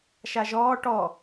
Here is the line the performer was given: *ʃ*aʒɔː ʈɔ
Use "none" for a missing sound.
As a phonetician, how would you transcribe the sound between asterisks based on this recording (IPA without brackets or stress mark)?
ʃ